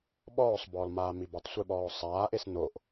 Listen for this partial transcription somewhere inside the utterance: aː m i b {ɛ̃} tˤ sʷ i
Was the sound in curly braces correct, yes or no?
no